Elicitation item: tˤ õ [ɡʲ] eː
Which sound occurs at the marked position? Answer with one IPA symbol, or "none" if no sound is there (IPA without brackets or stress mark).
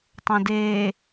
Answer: d